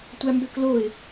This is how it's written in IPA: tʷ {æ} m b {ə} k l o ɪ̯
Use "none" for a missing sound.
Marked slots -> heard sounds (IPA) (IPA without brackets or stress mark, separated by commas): æ, ø